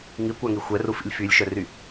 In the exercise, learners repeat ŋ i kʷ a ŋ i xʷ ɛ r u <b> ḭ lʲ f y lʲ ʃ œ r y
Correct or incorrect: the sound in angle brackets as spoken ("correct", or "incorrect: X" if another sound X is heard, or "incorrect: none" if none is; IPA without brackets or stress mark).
incorrect: f